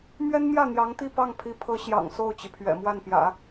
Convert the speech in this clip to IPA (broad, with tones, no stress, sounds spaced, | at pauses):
m ɥ ɛ˥ n m j ä˥˩ n̪ j ɑ˧˥ ŋ t̪ i˥˧ p ɑ˥˩ ŋ pʰ i˧˥ pʰ ɤ˧˥ ɕ j ɑ̰˨˩ ŋ s o˥˩ ʊ̯ t͡ɕ i˩ pʰ ɥ ɛ̰˨˩ m w a˥˩ n p j ä̰˨˩˦